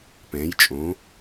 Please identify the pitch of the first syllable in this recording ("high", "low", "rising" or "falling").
rising